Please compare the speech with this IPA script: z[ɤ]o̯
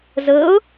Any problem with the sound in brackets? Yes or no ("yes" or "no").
no